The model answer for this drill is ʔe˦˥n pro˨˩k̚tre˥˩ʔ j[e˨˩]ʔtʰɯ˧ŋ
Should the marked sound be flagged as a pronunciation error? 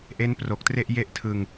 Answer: yes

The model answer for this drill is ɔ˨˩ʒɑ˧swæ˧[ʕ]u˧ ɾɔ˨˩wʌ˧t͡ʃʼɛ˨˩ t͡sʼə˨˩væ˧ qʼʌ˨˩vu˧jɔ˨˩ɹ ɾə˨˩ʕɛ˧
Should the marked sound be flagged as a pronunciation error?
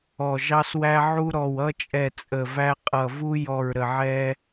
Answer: no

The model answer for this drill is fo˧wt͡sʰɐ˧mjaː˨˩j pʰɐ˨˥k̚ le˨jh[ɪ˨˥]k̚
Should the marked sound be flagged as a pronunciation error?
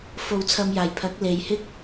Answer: yes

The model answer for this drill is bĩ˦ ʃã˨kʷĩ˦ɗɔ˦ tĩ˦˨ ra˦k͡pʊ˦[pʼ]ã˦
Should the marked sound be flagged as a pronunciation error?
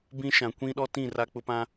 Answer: yes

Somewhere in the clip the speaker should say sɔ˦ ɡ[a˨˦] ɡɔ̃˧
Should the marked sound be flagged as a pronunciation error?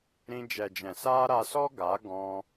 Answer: no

